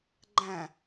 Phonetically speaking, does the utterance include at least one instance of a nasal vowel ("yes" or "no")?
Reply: yes